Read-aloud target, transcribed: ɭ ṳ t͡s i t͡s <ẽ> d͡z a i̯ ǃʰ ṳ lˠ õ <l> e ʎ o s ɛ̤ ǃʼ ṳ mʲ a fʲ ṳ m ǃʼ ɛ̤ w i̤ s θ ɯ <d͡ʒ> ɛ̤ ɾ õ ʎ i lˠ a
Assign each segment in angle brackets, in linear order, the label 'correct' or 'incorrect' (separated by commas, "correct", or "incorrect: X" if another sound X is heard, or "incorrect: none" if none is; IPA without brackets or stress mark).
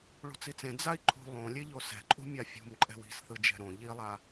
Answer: correct, incorrect: lʲ, correct